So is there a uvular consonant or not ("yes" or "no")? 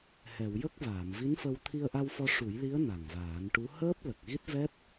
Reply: no